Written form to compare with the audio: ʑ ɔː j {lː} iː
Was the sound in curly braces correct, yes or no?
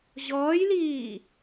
no